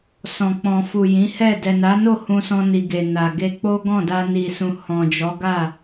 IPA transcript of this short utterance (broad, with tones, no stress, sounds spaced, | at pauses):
s ɔ̃˨ k͡p ɔ̃˨ f u˨ j ĩ˨˦ h ɛ˦˨ d ɛ˨ n a˨˦ n o˦˨ h ũ˧ s ɔ̃˧ n i˨ ɡ e˨ n a˨ ɡ e˧ k͡p o˦ ɡ ɔ̃˦˨ d a˧ n i˨ s ũ˨ h ɔ̃˨ d͡ʒ ɔ˨˦ ɡ a˦˨